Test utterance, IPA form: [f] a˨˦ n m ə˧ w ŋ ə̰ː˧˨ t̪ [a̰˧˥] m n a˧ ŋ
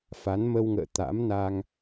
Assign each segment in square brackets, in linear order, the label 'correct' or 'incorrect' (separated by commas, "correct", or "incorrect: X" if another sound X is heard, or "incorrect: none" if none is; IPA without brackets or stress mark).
correct, correct